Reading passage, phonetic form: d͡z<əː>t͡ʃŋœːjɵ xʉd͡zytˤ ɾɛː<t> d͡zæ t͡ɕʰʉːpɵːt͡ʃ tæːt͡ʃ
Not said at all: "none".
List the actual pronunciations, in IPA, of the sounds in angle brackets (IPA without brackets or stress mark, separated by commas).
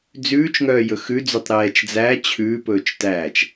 ʉː, t͡ʃ